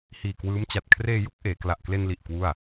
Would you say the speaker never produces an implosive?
yes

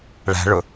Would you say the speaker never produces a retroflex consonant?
no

